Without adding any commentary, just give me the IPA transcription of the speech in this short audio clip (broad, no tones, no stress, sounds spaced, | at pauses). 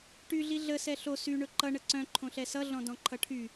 ʈ y ɮ i ɮ ə s ɛ ɬ o s y ɳ ɵ ǃ ʌ ɳ ə ǀ œ̃ ǃʰ õ ɬ ɛ s ʌ ɮ ɔ̃ d ɔ̃ ǃʰ ʌ ʈʰ y